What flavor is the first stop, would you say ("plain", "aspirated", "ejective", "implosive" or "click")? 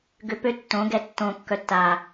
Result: plain